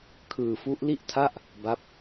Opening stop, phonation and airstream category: aspirated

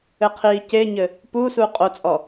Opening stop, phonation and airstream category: aspirated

